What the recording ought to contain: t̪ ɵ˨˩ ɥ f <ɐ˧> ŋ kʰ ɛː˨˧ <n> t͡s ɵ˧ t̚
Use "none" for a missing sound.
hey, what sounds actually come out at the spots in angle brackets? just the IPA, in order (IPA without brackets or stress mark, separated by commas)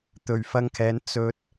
ɐ˧, n